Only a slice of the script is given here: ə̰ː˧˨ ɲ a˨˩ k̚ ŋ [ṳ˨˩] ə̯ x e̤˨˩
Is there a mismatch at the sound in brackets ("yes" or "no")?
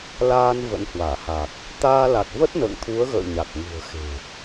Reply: no